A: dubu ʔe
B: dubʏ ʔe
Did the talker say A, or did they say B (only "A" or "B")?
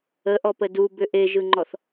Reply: B